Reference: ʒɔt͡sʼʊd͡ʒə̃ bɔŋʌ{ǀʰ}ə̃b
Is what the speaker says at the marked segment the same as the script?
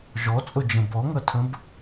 no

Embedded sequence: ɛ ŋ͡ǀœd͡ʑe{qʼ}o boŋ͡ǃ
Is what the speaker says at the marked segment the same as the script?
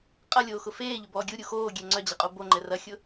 yes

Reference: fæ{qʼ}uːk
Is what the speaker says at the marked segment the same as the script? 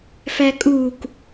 no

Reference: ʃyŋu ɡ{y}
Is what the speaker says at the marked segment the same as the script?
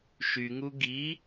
no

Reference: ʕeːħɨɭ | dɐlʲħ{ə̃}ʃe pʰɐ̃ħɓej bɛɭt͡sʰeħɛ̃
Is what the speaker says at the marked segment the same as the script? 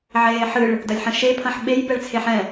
no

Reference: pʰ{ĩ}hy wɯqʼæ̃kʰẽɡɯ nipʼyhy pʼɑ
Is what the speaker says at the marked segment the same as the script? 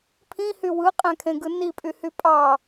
yes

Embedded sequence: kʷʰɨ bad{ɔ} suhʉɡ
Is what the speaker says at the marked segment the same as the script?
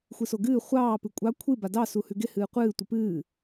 no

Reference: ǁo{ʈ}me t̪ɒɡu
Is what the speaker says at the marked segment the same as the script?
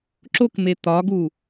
no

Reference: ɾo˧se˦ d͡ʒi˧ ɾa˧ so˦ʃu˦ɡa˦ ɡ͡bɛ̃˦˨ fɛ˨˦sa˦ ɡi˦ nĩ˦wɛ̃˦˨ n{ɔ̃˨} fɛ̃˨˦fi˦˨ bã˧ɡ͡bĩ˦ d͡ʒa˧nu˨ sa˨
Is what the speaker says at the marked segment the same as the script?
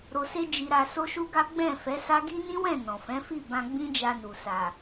yes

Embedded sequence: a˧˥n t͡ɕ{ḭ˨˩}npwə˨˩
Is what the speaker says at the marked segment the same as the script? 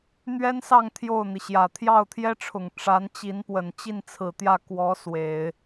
no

